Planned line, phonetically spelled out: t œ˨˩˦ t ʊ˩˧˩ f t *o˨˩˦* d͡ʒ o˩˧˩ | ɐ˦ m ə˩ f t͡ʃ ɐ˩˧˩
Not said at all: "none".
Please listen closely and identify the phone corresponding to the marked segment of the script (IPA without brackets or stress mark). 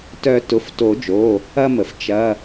o˨˩˦